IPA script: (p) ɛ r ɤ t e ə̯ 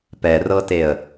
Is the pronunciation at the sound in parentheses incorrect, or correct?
correct